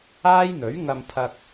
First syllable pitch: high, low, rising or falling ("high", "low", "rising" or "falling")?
high